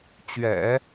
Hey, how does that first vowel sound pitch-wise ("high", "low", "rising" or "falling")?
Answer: low